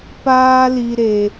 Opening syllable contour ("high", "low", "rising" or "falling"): high